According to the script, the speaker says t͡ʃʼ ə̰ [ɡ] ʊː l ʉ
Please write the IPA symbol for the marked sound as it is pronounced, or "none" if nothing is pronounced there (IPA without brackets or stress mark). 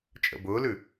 b